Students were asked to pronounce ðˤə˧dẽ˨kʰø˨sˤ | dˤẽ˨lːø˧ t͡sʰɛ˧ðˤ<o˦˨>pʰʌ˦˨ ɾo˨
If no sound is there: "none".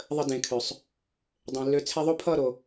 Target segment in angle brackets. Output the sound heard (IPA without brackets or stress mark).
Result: o˦